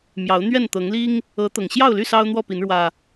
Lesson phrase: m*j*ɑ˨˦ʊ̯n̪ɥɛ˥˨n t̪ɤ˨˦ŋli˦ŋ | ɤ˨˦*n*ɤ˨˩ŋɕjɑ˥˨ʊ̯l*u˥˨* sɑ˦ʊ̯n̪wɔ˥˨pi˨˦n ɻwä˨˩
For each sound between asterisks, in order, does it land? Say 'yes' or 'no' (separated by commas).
yes, no, no